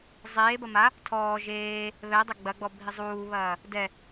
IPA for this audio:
zˤ eː b ɐ m a | tʰ ɔː ʒ eː | β ɛ dˤ ɐ ɡ͡b ɐ ɡ͡b ɔ bʱ i zˤ uː β ɐː | d ɛ

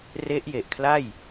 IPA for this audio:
r e˦˥ ʔ j e˨˩ ʔ kʰ l a˥˩ j

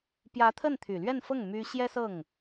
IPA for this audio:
p j ä˧˥ t̪ʰ ə˥˩ n t̪ʰ y˨˩ l ɥ ɛ˥˧ n f ɤ˥˩ ŋ m y˥ ɕ j ɛ˥ s ɤ˥˩ ŋ

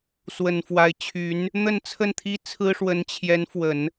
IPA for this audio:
s w ə˨˩ n f w a˧˥ ɪ̯ t͡ɕʰ y˧˥ n | n̪ ə˥˧ n t͡sʰ ə˥˩ n t̪ʰ i˥ t͡sʰ ɹ̩˥ ʂ w ə˧˥ n t͡ɕʰ j ɛ˧˥ n f w ə˨˩˦ n

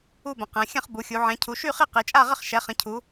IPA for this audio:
u˥˧ b ə̃˨˦ q ɛ̃˨˦ xʲ ə̃˥˧ χ b u˨˦ xʲ u˨˦ ʕ ɛ̃˨˦ cʰ u˨˦ ʃ y˥˧ χ i˥˧ q i˨˦ t͡ʃʼ a˥˧ ʁ ə˥˧ χ ʃ ɛ˨˦ χ ə̃˨˦ cʰ u˨˦

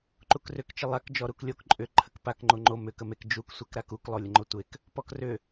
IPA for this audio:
ǃ u k r ʏ k t͡ʃ ə lˠ a k d͡ʒ ɔ ɾ u k lʲ o k ǃʼ ʏ ǃʰ ə k p a k ŋ͡ǃ o ŋ͡ǃ o m ʏ k ə m e k d͡ʒ u k sʷ e k ɾ a k u k lˠ o lʲ ə ŋ͡ǃ o tʷ e k | p ɔ k r ʏ

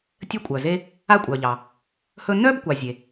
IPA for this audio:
tʲ ə˦ kʷʼ œ˩ z e˦ | a˦ kʷʼ œ˩ ʎ ɑ˩ | h ɵ˦ n œ˥ b kʷ ɑ˨ zʲ e˩

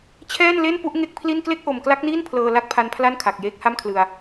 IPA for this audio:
t͡ɕʰ ɛː˥˩ n l e˥˩ n p u˥˩ ʔ ŋ e˥˩ k̚ pʰ l i˥˩ n k l e˥˩ k̚ ʔ o˨˩ m k l a˦˥ k̚ n iː˥˩ n pʰ l ɤː˧ l a˥˩ k̚ pʰ a˧ n pʰ l a˥˩ n kʰ a˨˩ k̚ j eː˦˥ k̚ h a˥˩ m kʰ l ɯ˧ a̯

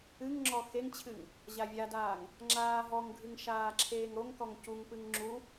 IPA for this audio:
ɨ ŋ ŋ͡ǁ ɔ x e ŋ t͡ɕʰ ɨ ŋ | ʑ a vʲ a d aː ŋ | ŋ͡ǁ aː ɦ ɔ ŋ ɡʱ ɨ ŋ ʃ aː ǁʰ eː ŋ ɾ o ŋ k ɔ ŋ c u ŋ p ɨ ŋ ŋ͡ǁ u

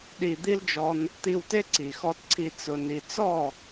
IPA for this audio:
ɗ i˨ d̪ i˦ l d͡ʒ ɔ˧ n | t̪ i˧ w t e˦ ǀ i˨ x ɔ˧ t ǀʰ i˧ t͡s ʊ˨ n i˨ t͡s ɔ˦˨

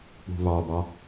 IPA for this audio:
k͡p ṳ β ɑ b ɑ

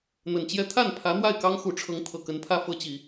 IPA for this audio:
n̪ ə˨˩ n t͡ɕ j ɛ˥ t̪ʰ a˥˩ n pʰ ä˧˥ n̪ w a˥˩ ɪ̯ k ɑ˥ ŋ x u˨˩ ʈ͡ʂʰ ɤ˧˥ ŋ t̪ʰ ɤ˨˩ k ə˧˥ n pʰ ä˥ f ɤ˧˥ t͡ɕ i˨˩˦

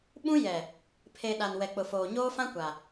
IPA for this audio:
ɓ ũ˦ j ɛ˨ | pʰ e˨ ɗ a˨ n w ɛ˨ k͡p ʊ˨ f oː˨ ɲ oː˦ f ã˦ kʷ a˨

